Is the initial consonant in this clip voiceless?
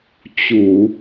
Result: yes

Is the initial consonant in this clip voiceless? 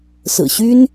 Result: yes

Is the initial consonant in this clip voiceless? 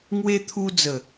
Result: no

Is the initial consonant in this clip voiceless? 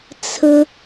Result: yes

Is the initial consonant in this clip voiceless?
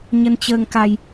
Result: no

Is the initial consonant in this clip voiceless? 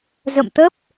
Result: no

